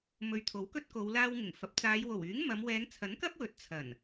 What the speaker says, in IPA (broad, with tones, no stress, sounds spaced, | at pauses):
m ɵ˨ ɥ t̪ʰ o˨˥ w k ɵ˥ t̚ k o˨˧ w l aː˧ w ŋ ɪ˨˩ ŋ f ɐ˨˥ p̚ t͡s aː˨˧ j w o˨˩ w yː˨˥ ŋ m ɐ˨˧ m w ɛː˨˧ ŋ t͡sʰ ɐ˨˥ n k ɐ˥ p̚ w ɵ˨˥ t̚ t͡sʰ ɐ˨˩ n